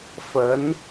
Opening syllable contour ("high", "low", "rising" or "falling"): rising